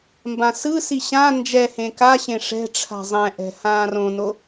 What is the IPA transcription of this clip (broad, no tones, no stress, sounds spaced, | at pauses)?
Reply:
m b ã s ɯ s i ɕ ã n d͡ʒ ɛ h ẽ k a ɕ ẽ ʂ ɛ̤ ʈ͡ʂʰ a̤ zˤ ɛ̃ ʔ ɛ̤ h ãː r õ n o